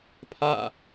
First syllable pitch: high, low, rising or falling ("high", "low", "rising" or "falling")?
falling